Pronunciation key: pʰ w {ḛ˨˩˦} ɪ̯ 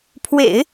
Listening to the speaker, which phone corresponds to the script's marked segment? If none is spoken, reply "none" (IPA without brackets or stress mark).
ḛ˨˩˦